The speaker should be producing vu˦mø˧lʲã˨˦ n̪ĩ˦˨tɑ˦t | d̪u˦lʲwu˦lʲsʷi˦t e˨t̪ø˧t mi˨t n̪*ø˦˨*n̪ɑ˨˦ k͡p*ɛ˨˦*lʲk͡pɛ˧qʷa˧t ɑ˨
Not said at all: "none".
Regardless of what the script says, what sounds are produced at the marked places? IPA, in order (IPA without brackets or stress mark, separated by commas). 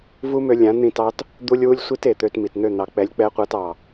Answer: ø˦˨, ɛ˨˦